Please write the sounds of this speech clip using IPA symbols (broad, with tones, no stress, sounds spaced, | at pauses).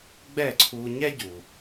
ɡ͡b ɛ˦˨ ǀʰ u˧ ɲ ɛ˦ ɟ u˨